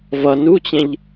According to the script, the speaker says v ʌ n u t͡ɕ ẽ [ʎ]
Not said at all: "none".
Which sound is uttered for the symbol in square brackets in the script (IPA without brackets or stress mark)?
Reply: ʎ